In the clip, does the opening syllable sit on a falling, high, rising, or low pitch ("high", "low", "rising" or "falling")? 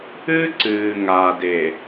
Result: high